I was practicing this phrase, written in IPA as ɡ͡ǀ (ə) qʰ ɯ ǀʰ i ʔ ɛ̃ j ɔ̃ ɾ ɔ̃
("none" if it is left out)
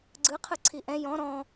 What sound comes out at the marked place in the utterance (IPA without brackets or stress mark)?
ɯ